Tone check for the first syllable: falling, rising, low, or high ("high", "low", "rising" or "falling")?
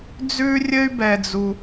high